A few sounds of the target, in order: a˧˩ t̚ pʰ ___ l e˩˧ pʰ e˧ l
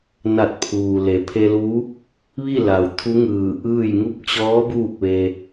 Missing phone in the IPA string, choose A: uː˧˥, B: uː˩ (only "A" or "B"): B